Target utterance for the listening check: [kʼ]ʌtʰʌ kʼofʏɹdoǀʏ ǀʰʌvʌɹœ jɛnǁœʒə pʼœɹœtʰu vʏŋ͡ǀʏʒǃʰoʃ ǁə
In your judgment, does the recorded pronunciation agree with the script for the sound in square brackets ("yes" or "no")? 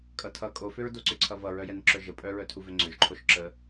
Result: yes